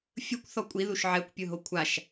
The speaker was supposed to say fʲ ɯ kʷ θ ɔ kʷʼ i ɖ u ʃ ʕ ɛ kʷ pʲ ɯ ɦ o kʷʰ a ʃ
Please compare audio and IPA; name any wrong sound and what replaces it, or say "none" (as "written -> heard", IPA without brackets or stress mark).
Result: ɖ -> ð